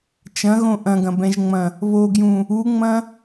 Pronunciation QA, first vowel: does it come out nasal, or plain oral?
nasal